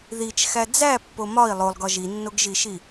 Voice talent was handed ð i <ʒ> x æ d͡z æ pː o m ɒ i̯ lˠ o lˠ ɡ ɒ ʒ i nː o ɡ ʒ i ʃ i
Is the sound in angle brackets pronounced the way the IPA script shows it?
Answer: no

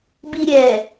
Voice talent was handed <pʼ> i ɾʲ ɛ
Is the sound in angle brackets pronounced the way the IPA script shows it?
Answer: no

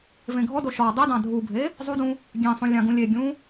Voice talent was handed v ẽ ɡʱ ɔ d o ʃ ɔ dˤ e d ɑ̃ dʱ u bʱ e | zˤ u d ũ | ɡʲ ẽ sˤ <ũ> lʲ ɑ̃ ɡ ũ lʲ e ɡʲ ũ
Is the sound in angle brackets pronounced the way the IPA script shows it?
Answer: yes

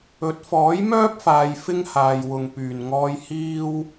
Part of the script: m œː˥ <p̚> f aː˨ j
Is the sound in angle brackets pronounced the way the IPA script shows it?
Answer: yes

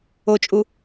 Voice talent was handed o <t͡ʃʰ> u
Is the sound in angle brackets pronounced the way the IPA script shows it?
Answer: no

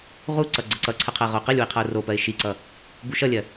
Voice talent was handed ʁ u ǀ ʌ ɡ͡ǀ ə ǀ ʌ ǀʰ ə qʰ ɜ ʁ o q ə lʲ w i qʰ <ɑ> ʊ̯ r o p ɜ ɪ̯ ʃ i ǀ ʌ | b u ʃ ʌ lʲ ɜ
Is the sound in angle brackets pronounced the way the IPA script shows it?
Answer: no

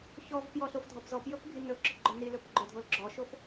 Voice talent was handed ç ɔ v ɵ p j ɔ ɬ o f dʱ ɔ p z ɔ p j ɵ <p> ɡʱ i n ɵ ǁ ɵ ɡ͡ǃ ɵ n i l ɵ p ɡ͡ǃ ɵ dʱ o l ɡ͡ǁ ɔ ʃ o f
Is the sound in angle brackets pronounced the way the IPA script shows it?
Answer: yes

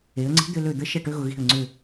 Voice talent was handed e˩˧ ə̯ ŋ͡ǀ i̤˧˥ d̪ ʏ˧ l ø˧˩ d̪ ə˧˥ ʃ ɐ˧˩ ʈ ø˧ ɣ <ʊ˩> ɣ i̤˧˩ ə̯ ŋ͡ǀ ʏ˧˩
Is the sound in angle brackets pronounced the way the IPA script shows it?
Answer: yes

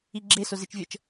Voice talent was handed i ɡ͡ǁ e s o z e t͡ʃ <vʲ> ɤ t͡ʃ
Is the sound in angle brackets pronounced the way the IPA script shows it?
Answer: yes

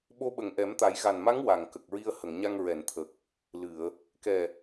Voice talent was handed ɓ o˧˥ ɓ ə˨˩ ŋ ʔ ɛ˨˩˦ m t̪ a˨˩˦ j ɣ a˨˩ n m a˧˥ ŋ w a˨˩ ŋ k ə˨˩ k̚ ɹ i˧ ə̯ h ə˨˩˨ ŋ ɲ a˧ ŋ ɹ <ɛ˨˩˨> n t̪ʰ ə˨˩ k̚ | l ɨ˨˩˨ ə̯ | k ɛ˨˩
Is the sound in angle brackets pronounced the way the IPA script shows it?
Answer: yes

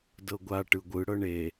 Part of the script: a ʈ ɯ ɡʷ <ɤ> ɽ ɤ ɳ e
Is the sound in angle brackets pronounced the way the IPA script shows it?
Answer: no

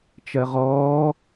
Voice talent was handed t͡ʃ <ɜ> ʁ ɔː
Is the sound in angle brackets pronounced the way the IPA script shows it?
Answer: yes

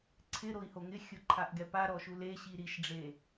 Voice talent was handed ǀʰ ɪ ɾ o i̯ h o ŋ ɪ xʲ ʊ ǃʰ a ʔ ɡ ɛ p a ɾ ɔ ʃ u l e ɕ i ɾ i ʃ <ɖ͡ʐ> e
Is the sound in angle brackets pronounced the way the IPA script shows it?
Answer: yes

